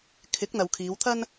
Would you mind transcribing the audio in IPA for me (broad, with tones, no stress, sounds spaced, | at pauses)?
kʰ ɪ˨˥ k̚ n̪ ɐ˨ w kʰ iː˨˧ w t̪ʰ ɐ˥ n